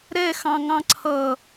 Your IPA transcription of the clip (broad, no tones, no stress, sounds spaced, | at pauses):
ɾ ɛ x ɑ̃ ŋ ɑ̃ ǀʰ ʌ